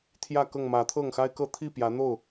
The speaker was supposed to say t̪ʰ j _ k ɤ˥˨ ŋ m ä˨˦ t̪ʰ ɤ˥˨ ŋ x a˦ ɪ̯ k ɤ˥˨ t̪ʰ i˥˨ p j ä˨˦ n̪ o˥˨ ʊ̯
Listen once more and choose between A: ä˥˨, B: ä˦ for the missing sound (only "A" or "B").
A